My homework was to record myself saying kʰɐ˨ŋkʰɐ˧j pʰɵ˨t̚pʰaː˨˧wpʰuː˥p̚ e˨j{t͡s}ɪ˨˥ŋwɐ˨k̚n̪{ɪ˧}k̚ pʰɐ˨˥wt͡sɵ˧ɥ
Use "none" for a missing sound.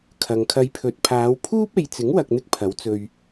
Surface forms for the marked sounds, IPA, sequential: t͡s, ɪ˧

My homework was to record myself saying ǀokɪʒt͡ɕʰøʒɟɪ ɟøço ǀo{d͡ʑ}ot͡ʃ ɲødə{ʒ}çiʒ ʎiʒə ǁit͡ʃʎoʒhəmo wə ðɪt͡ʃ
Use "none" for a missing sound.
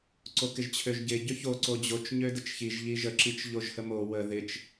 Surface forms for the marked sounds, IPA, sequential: d͡ʑ, t͡ʃ

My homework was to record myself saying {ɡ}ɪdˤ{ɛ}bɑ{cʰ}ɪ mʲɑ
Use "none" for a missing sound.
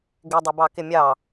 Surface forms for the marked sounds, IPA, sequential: ɡ, ə, k

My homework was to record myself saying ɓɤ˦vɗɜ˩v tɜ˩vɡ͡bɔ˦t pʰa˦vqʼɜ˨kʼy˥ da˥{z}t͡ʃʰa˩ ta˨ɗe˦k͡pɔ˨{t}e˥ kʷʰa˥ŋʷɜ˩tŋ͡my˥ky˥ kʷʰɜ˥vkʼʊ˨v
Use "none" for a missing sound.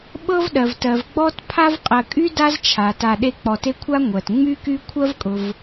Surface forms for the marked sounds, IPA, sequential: z, t

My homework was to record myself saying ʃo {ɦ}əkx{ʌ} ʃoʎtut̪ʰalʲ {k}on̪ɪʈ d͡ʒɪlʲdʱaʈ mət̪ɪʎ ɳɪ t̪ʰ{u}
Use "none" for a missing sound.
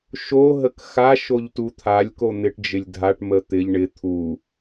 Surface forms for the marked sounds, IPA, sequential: ɦ, a, k, u

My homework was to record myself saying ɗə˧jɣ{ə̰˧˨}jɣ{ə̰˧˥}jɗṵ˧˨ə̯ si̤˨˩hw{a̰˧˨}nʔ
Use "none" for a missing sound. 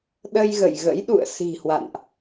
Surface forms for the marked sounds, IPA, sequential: ə̰˧˨, ə̰˧˥, a̰˧˨

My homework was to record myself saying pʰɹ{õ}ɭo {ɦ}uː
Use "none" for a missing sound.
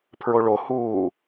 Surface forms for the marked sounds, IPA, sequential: o, h

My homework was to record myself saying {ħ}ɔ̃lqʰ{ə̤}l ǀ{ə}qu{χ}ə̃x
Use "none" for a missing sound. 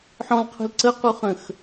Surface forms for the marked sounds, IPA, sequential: ħ, ə̤, ə, χ

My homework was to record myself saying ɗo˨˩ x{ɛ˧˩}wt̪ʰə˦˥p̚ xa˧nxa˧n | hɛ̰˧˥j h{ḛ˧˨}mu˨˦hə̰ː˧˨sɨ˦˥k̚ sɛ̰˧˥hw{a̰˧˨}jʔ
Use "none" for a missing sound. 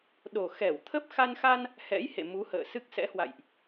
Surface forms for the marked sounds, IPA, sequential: ɛ˧˩, ḛ˧˨, a̰˧˨

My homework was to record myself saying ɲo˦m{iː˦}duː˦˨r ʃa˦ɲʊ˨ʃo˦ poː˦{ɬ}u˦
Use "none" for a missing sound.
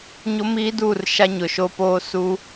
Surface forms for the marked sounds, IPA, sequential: iː˦, s

